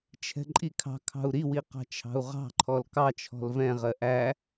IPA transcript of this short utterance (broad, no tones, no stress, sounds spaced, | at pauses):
t͡ʃʰ ɛ̤ ǃʼ i kʰ ɑ̤ kʰ ɑ̤ u̯ ɾ i w i q ɑ̤ t͡ʃʰ ɑ̤ u̯ ʁ ɑ̤ ǃʰ ɔ l k ɑ t͡ʃʰ ɔ̤ l v ɛ̃ ʁ ɜ ʔ æ